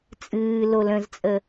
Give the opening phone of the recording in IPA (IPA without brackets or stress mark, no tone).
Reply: t͡sʼ